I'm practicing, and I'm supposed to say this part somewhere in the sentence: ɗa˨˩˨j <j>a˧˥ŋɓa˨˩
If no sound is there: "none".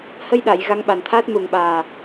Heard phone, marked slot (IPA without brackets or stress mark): ɣ